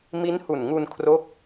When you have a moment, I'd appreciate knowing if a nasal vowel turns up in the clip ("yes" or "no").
no